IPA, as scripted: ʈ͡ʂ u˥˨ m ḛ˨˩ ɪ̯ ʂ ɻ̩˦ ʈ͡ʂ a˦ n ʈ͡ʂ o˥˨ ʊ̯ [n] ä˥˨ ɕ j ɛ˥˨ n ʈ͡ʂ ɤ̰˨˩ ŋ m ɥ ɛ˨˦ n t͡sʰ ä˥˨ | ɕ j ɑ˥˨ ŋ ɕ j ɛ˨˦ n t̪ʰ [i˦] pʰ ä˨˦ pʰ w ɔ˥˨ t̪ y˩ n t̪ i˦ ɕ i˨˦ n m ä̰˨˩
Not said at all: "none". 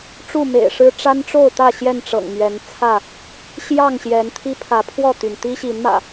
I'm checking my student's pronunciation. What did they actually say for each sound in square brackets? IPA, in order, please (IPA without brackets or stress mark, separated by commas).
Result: t̪, i˦